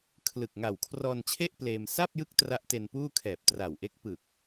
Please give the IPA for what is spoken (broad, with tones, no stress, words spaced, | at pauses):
kʰlɯ˨˩k̚ŋa˨˩w kʰrɔː˧nt͡ɕʰe˥˩ʔ pleː˧m sa˥˩p̚jɯ˦˥k̚ tra˦˥ʔte˧npuː˥˩ kʰɛː˨˩p̚ tra˨˩wʔe˦˥k̚ pɯ˨˩k̚